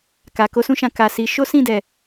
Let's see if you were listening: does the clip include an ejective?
no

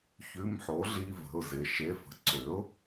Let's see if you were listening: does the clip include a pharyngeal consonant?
yes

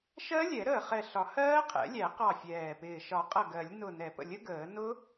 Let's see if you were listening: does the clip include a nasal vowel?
no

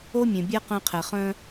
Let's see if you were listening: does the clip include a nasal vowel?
yes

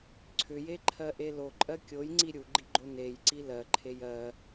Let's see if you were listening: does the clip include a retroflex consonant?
no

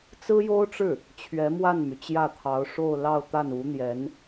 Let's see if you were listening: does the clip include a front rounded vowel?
yes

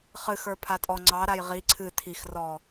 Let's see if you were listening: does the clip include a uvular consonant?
yes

